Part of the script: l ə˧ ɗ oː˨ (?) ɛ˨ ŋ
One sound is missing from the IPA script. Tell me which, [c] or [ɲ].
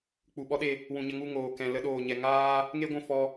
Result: ɲ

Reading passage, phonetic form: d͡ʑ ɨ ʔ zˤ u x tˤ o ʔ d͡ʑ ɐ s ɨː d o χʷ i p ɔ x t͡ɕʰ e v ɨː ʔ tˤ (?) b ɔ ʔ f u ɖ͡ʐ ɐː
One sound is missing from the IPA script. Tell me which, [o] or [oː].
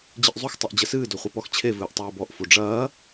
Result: oː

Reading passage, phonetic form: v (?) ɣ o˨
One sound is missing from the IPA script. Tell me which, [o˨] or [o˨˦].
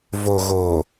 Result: o˨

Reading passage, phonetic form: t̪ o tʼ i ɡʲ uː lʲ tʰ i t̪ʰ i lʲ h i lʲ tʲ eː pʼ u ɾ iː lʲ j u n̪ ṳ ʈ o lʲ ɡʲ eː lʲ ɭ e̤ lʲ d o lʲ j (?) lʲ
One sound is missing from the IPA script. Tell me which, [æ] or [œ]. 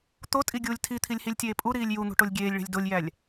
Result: æ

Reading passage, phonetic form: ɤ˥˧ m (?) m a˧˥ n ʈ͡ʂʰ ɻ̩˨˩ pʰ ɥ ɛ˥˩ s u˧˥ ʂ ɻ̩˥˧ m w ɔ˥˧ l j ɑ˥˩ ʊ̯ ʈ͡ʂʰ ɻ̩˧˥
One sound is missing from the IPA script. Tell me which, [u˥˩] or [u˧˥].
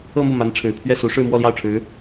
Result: u˥˩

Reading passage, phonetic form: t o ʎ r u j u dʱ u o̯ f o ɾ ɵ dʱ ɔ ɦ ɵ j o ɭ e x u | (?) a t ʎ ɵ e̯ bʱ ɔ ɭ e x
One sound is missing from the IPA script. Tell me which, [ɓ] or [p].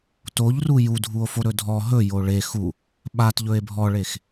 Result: ɓ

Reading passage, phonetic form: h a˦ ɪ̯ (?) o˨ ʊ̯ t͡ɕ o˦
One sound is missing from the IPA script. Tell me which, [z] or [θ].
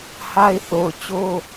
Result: θ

